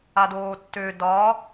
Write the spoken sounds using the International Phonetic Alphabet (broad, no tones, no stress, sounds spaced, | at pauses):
a d oː tː ø d ɒː